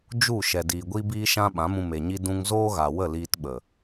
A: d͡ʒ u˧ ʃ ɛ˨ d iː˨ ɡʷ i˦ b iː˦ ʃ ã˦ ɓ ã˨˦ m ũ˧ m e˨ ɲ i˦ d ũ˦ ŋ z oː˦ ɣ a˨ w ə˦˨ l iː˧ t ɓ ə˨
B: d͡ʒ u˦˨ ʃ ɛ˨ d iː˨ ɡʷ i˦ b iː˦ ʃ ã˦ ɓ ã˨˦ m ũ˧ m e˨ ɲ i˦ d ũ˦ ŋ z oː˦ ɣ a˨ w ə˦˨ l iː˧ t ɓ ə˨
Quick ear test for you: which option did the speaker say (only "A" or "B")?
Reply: B